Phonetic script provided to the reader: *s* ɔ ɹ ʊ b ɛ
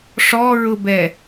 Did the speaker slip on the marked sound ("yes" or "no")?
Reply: yes